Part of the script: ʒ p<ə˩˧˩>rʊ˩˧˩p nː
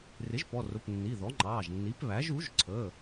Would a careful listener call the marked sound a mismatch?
yes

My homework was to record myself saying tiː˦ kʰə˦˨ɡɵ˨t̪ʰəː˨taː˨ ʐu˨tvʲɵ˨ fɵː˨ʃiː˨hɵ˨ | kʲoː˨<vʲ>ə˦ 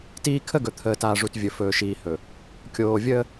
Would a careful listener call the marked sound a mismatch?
no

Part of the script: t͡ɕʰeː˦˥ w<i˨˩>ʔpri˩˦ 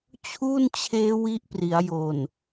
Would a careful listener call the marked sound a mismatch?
yes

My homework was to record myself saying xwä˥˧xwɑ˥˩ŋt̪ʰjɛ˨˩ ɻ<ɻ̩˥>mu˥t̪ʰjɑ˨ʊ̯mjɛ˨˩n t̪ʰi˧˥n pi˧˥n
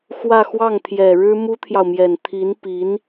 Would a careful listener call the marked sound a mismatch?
no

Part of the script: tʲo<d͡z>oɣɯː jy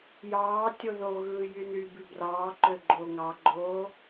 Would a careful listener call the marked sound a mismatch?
yes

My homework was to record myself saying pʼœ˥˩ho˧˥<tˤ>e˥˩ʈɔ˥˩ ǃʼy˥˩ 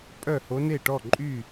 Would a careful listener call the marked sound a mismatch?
yes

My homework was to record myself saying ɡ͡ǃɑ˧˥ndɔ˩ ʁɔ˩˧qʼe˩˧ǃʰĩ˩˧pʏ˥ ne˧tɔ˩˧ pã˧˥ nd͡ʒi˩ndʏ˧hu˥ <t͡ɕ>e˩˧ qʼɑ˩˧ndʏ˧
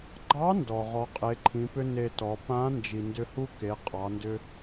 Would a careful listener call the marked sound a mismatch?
yes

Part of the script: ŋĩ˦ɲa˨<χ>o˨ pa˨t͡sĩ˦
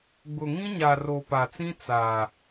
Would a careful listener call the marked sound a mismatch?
yes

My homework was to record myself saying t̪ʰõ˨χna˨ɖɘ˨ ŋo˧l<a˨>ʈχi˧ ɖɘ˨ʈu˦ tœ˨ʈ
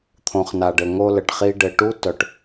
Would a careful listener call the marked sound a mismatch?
yes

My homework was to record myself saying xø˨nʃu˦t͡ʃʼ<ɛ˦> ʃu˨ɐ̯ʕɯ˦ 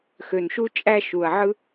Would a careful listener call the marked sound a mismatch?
yes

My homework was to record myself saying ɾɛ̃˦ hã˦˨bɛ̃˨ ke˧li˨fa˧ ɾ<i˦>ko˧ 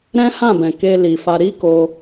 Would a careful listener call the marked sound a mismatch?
no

